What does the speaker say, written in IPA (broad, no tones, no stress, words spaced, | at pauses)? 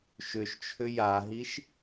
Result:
ʃʏʃt͡ʃʰʏ jaɦiʃ